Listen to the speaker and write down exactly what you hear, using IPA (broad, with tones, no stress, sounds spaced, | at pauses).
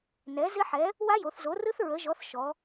n ɛ˩˥ z ɪ˦˥ ħ ɛ˩˥ | w a˦˥ j o˩˧ θ z o˩˥ r ɯ˦˥ θ ɹ ə˩˥ ʒ ɔ˩˥ θ ʃ ɔ˩˧